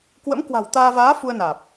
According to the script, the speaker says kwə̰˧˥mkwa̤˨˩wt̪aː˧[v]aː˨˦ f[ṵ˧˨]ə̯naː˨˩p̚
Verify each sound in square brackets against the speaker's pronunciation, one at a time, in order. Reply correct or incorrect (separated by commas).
correct, incorrect